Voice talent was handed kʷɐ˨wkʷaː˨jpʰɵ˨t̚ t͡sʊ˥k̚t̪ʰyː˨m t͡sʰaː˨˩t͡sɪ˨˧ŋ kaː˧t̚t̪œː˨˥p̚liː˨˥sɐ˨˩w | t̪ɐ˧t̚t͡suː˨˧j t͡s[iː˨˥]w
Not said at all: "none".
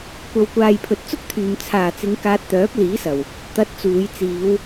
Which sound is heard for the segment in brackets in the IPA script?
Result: iː˨˧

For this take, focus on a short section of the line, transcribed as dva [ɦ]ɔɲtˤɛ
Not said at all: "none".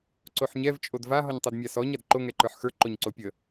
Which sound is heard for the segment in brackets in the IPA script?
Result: ɦ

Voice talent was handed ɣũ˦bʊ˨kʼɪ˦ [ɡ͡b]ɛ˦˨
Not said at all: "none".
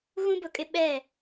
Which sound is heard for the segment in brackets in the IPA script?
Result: ɓ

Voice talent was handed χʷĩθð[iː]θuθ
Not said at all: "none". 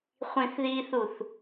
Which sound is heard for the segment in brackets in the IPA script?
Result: iː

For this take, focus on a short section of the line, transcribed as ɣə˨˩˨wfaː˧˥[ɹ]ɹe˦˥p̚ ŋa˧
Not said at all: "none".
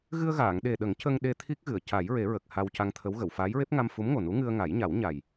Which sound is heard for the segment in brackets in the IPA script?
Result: j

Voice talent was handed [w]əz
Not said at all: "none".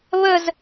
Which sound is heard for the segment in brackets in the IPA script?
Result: β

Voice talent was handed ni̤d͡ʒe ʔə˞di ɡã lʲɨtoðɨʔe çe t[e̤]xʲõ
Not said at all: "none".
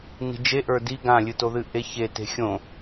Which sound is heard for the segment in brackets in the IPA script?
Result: e̤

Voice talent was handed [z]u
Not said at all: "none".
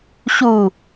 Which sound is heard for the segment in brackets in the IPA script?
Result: ɕ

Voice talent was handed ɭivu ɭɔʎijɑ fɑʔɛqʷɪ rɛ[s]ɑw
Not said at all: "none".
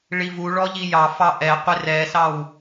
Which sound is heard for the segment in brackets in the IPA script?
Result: s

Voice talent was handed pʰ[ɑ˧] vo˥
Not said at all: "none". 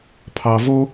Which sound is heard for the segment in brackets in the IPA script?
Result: ɑ˧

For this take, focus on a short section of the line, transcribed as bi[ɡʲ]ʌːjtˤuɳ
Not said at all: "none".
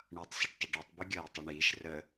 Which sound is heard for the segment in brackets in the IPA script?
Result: ɡʲ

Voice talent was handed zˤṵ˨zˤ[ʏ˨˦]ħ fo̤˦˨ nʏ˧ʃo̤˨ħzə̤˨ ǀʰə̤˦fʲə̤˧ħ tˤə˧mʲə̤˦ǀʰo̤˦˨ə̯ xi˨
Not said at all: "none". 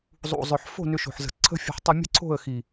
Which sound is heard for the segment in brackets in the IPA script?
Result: ʏ˨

